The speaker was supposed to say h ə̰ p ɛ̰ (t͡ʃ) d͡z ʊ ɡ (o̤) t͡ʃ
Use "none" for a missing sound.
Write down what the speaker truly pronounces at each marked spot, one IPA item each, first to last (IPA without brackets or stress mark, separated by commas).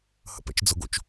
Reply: t͡ʃ, o̰